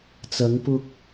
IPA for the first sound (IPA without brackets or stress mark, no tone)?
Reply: t͡s